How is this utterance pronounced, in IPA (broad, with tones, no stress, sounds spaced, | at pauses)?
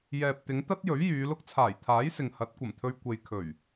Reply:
j ɛː˨ p̚ t̪ ɪ˨˧ ŋ t̪ ɐ˥ t̚ j ɵ˨˥ ɥ j yː˨˧ l ʊ˥ k̚ t͡sʰ aː˨˩ j t̪ʰ aː˨˥ j s ɪ˨ ŋ h ɐ˨˥ t̚ kʷ ɐ˨˩ m t̪ʰ ɵ˧ ɥ kʷ e˨ j kʰ ɵ˨˩ ɥ